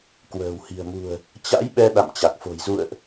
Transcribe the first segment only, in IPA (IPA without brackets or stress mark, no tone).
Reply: k